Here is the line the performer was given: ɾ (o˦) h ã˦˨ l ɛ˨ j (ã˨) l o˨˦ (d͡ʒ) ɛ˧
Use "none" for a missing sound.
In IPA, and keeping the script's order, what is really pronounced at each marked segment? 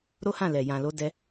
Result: o˦, ã˨, d

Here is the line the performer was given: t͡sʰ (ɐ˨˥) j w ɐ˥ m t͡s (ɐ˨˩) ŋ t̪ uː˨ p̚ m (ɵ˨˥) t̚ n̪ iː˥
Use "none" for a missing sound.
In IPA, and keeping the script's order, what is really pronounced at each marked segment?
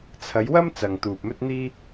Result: ɐ˨˧, ɐ˨, ɵ˥

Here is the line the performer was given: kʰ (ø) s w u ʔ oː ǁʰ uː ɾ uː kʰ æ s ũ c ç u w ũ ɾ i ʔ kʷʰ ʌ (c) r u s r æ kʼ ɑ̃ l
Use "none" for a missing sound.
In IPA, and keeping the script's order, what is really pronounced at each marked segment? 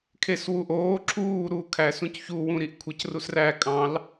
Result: e, c

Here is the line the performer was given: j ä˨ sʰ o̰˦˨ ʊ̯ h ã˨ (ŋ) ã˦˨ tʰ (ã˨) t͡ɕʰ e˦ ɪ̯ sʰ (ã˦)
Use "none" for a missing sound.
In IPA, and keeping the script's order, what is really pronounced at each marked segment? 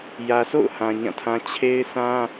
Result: ɲ, ã˦, ã˦

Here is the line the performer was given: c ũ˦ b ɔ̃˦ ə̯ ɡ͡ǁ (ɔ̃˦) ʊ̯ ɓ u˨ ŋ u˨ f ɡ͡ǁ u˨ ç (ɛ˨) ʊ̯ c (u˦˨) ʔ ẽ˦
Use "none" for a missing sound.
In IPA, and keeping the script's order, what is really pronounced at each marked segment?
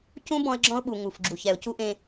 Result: ɔ̃˦, ɛ˨, u˦

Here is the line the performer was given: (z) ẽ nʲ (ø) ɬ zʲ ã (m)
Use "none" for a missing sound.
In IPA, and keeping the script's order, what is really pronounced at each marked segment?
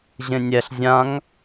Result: ʑ, ɛ, ŋ

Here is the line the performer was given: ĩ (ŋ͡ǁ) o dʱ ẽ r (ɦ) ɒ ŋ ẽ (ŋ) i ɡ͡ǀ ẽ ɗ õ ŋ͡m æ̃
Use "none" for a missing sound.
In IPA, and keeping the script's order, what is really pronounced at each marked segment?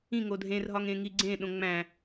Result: ŋ, ɦ, ŋ

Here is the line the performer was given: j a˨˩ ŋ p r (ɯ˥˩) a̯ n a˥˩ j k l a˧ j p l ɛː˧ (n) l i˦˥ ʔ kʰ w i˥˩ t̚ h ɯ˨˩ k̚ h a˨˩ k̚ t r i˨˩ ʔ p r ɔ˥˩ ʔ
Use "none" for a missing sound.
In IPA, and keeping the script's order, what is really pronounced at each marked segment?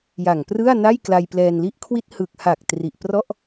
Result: ɯ˥˩, n

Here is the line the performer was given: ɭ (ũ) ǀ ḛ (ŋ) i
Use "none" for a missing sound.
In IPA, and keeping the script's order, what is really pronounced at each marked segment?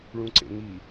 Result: ũ, ŋ

